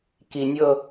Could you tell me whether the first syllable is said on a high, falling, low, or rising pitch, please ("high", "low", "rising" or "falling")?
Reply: low